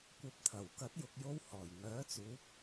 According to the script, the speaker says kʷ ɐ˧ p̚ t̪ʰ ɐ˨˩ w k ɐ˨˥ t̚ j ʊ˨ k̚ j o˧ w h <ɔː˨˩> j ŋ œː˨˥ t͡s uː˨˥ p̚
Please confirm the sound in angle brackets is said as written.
yes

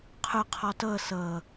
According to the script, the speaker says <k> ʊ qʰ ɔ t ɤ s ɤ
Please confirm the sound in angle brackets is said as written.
no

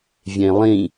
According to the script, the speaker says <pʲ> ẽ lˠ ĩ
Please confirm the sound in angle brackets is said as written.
no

